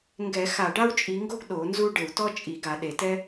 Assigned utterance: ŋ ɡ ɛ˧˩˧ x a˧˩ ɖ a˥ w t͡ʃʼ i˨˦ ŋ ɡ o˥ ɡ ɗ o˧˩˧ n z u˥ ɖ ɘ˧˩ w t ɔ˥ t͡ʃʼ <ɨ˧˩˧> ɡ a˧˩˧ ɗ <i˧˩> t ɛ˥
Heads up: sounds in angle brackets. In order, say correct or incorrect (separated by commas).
incorrect, incorrect